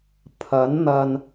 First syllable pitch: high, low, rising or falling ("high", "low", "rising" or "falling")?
rising